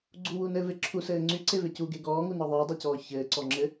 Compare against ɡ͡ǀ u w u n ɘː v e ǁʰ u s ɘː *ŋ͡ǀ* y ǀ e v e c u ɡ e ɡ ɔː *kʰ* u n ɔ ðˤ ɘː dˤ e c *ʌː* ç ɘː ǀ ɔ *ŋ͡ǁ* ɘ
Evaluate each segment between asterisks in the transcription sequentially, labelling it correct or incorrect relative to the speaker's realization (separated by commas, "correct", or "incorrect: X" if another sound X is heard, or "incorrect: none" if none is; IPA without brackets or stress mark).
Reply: correct, incorrect: ŋ, incorrect: ɔː, correct